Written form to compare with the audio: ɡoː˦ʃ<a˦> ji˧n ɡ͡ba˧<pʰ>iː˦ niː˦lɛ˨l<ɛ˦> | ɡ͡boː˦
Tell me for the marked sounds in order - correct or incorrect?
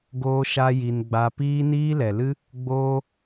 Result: correct, incorrect, incorrect

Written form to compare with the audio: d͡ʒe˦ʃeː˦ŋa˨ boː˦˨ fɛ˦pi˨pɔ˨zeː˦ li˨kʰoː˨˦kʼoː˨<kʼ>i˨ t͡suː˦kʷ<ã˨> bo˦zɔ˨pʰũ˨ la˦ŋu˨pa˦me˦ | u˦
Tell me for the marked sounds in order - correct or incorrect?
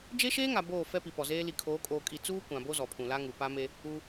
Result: correct, correct

